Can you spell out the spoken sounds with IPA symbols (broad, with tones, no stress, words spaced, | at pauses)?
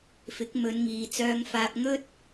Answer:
fɪ˨˥k̚mɵ˨˧nŋiː˨ t͡sœː˧ŋfaː˧p̚ ŋɵ˥t̚